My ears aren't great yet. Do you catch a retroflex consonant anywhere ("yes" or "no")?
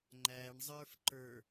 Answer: yes